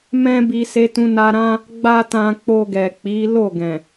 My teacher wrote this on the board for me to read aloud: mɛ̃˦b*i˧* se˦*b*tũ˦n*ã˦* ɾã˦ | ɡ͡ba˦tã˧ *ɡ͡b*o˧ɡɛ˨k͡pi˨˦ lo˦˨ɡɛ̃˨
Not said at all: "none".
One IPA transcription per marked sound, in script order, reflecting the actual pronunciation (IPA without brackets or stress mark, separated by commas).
i˧, none, a˦, k͡p